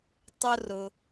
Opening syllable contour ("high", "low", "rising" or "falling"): high